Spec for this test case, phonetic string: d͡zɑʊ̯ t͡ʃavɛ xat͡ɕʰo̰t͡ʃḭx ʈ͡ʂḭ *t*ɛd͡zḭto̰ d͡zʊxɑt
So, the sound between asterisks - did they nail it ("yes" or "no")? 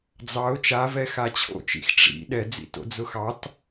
no